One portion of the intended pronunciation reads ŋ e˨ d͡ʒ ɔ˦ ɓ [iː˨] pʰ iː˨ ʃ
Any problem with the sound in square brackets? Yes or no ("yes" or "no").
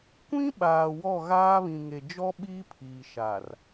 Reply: yes